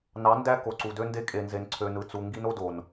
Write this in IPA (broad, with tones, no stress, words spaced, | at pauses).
nɑ˨˦ndæ˦ ko˨ǀu˨dø˦nde˦ kʼe˨nze˨n ǀʰø˨nɯ˨t͡su˨ ŋɡi˦no˦do˨n